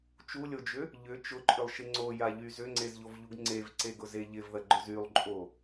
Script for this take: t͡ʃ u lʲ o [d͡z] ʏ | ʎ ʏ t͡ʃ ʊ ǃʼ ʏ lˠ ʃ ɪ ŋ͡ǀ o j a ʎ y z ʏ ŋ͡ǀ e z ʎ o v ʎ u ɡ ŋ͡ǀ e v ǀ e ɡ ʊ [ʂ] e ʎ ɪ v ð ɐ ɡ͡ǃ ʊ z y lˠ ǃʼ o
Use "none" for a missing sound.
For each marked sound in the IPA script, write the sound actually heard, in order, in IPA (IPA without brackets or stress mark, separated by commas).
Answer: d͡ʒ, z